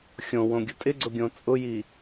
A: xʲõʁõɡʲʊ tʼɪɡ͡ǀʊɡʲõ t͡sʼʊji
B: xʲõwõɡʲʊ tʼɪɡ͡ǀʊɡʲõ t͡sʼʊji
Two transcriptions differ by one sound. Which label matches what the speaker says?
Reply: B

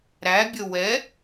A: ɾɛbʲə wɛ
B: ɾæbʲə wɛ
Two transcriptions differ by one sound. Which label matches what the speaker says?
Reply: B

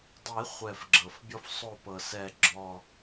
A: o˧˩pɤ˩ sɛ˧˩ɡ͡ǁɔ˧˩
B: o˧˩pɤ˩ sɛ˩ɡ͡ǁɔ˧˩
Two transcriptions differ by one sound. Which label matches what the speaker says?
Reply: A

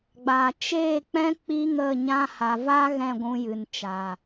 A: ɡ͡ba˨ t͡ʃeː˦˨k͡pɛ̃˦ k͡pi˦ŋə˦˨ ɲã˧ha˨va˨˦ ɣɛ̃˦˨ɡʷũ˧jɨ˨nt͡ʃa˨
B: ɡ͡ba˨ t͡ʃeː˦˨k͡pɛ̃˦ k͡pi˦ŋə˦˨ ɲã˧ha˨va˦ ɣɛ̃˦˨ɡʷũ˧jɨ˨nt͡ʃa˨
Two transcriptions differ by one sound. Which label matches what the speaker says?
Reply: B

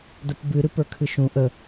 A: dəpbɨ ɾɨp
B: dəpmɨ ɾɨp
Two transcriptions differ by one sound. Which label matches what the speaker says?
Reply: A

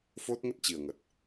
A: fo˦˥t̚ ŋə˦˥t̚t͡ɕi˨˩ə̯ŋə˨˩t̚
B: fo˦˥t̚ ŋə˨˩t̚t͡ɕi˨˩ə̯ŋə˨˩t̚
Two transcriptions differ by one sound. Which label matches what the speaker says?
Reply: A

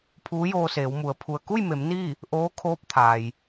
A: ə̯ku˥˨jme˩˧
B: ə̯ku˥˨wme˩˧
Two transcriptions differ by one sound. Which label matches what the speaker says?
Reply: A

